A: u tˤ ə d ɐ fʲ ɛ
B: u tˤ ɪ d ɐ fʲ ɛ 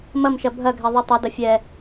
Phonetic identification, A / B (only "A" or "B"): A